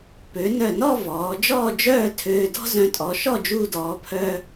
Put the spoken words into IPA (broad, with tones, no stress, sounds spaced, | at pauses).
p ø˩˧ n œ˧˩ n ɔ˥˧ v ɔː˩˧ d͡ʒ ɔː˥˧ d͡ʒ œː˥˧ tʰ øː˧ d ɔ̤˥ z œ̃˧ tʼ ɔ˩˧ ʃ ɔ˥˧ d͡ʒ uː˧ d ɔː˩˧ pʰ œː˧